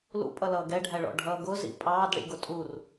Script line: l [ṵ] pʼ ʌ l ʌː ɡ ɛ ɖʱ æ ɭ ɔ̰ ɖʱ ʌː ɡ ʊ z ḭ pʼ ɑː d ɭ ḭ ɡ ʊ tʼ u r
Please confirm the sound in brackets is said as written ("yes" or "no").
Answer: yes